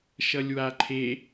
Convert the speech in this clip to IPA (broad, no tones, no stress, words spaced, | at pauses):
ʃʌlʲwaǃʰe